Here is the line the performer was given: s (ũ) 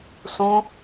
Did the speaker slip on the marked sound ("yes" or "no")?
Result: no